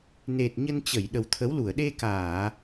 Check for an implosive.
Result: present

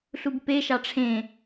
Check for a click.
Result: absent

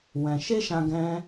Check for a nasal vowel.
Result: present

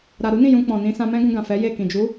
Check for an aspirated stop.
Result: absent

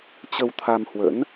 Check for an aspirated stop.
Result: present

